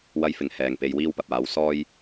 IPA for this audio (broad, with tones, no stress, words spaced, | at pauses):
wɐ˥j fɪ˨ŋhɛː˨ŋ pe˧jwiː˥wpɐ˨p̚aː˨˥w sɔː˥j